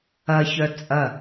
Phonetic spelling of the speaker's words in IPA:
ɐçœ t͡sʼɐ

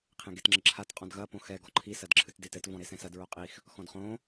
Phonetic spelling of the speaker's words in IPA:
qʰẽɡetŋ͡ǁɘǁʰat qʼɔ̃dɣɐ põxɛ ɡɔǃʰi sɐdǁʰɨtdetɘt vɔ̃ɾesɛ̃sɐd ɹoqʼix | xɔ̃dχõ

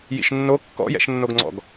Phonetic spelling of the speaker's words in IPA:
jḭʃnːo kːɔ̰jɛ̰ʃnːoɡŋ͡ǀɔ̰ɡ

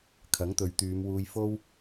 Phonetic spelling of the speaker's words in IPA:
kʰɐ˨˥ŋt̪ɵ˨˧ɥt̪yː˨˧mwuː˧j fo˥w

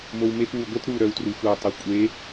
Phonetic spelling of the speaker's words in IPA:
mowmep wuɡʷət ɾu ɾœwtruxʷœ tˤœkʷʼe

